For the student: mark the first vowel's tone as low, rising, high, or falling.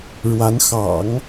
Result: rising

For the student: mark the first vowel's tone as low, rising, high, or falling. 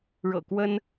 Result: low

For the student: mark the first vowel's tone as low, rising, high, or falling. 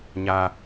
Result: high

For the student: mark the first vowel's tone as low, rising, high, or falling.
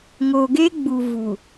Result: low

